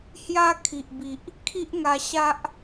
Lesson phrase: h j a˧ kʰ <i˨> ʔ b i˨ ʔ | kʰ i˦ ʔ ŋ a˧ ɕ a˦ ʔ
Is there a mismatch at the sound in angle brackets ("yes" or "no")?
no